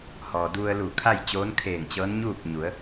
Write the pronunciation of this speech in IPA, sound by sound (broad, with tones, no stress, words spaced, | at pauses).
hɔː˩du˧ə̯lu˧˩ kʰa˥˨jt͡ɕoː˧˥n kʰeː˧˩ŋt͡ɕɤː˧˥nɲuː˥˨p̚ɲu˩˧ə̯